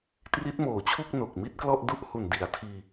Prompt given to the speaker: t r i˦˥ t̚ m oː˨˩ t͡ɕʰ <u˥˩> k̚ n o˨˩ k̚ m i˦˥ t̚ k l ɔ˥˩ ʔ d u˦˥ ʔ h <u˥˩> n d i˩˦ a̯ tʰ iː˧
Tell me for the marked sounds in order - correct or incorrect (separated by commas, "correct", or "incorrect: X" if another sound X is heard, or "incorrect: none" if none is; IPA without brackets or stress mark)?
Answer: correct, incorrect: u˨˩